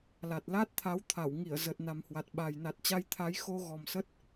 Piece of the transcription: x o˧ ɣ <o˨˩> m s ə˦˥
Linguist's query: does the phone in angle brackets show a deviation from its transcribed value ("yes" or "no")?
yes